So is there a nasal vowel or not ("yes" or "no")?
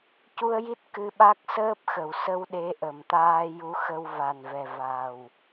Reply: no